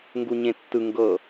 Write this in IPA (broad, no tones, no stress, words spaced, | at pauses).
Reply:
ŋɡuɲẽtːɯ ŋɡɤ